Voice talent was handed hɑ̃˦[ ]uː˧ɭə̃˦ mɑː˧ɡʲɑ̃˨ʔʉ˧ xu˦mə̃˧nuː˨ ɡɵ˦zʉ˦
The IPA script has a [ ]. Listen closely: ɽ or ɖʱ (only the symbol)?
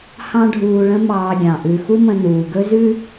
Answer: ɖʱ